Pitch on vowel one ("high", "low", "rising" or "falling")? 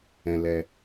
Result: low